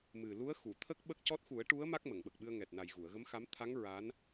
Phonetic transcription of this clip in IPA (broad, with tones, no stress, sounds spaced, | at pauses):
m ɨ˨˩ l u˧˥ ə̯ x u˨˩˨ t̪ʰ ə˦˥ k̚ ɓ ə˦˥ k̚ c ɔ˦˥ t̚ x u˨˩˦ ə̯ ʈ u˧˥ ə̯ m a˦˥ k̚ m ə˨˩˨ ŋ ɓ ə˨˩ k̚ ɓ ɨ˧ ə̯ ŋ ɛ˨˩ t̚ n a˨˩ j ɣ u˨˩˨ ə̯ ɣ ə˧˥ m x a˧˥ m t̪ʰ a˧˥ ŋ ɹ a˧˥ n